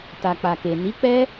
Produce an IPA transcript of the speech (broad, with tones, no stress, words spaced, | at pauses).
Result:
ta˨k͡pa˨ke˨ ni˨˦k͡pɛ˦